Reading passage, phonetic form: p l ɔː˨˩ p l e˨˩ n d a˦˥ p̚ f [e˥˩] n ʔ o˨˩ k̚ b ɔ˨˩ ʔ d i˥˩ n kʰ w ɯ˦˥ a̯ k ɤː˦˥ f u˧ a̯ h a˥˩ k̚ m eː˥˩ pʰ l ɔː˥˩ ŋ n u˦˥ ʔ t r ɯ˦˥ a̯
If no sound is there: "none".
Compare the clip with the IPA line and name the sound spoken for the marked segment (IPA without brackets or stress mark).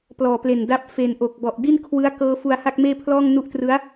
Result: e˨˩